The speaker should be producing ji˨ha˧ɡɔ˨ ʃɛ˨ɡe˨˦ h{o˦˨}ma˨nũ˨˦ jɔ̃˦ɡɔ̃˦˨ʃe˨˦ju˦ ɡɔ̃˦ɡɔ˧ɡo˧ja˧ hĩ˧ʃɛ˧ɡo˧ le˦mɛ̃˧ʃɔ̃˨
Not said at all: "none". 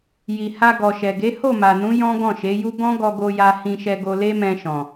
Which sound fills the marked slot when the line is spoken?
o˦˨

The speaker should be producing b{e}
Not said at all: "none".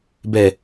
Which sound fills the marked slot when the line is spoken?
ɛ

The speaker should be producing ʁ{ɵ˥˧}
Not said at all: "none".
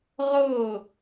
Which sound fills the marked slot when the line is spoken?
ɤ˥˧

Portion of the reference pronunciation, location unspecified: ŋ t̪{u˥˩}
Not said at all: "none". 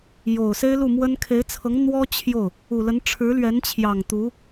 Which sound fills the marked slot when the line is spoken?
u˧˥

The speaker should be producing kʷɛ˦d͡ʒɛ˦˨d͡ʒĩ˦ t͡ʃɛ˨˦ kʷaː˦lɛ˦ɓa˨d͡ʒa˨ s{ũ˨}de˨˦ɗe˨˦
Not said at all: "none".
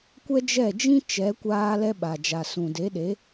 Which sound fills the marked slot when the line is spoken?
ũ˨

